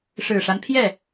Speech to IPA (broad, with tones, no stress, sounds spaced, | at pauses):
ʂ ɻ̩˨˩ ʂ a˦ n pʰ j ɛ˥˩